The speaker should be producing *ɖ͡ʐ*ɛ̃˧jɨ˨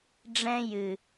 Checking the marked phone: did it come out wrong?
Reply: no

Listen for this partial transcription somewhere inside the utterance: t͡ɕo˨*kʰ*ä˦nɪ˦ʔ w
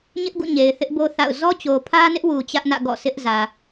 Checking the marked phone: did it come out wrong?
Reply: yes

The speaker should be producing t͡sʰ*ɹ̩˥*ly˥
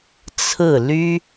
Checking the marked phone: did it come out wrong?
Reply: yes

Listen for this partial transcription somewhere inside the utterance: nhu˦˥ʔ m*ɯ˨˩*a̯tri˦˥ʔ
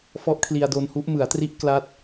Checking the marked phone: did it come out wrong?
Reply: yes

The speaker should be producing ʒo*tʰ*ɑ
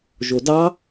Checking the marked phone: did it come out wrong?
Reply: yes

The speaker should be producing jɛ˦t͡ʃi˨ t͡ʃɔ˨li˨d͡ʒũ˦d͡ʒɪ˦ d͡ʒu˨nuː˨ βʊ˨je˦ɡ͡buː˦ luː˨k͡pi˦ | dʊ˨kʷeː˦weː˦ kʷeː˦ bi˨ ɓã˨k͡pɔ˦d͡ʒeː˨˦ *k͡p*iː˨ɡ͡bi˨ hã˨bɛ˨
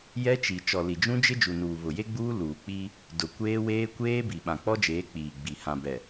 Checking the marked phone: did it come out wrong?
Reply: no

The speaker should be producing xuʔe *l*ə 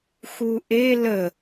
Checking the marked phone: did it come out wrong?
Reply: no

